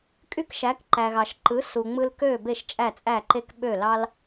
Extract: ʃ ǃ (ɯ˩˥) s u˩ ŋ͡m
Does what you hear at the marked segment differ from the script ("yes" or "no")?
no